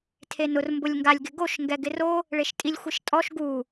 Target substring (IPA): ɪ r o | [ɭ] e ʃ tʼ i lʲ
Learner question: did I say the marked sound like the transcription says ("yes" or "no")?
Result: yes